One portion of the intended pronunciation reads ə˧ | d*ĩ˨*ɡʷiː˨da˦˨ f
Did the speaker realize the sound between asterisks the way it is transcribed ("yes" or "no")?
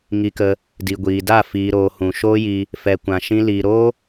no